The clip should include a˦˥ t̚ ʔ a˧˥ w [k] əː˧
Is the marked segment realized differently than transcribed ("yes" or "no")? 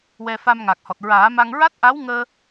yes